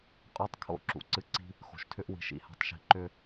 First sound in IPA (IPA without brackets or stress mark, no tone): qʼ